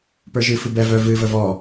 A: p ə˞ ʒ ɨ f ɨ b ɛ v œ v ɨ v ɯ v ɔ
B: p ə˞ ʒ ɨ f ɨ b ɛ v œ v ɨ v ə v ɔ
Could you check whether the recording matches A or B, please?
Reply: B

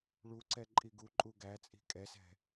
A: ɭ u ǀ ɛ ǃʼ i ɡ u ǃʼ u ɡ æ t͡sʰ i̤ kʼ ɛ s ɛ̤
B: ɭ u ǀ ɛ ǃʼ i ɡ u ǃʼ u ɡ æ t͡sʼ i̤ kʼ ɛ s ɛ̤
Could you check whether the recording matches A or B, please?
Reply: B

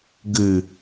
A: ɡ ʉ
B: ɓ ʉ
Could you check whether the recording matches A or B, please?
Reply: A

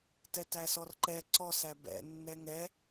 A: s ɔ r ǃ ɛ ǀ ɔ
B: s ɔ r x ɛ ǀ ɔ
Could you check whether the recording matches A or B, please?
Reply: A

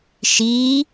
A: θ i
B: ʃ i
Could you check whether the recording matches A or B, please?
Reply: B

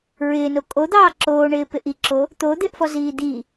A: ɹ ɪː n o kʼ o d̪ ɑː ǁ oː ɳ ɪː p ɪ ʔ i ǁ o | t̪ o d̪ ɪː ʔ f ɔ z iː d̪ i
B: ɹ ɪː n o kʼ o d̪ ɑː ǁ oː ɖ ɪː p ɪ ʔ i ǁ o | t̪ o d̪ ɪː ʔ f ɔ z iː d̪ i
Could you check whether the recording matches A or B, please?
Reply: A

